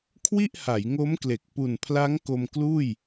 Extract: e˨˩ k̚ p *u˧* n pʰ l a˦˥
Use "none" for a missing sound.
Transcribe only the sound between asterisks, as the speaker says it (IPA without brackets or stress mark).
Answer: u˨˩